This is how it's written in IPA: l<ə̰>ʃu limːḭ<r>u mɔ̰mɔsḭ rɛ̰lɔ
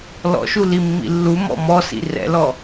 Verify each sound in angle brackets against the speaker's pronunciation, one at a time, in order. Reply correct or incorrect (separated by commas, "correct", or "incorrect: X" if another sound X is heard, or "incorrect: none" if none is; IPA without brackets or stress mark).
incorrect: ɔ̰, incorrect: lː